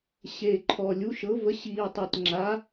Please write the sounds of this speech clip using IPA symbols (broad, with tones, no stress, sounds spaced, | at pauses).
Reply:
ɕ e˨˩ ǃʰ ɔ˨˩ lʲ u˩˥ ʃ ɤ˩˥ v ə˩˥ ɕ iː˨˩ tˤ e˨˩ t ŋ͡ǁ a˩˥